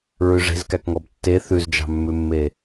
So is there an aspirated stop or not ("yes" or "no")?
no